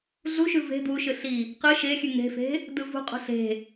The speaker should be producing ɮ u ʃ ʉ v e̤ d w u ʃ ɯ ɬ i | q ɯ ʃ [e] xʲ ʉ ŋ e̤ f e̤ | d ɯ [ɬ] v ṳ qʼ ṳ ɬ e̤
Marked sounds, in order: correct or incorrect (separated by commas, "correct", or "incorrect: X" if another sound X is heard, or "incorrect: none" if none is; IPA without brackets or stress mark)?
correct, incorrect: none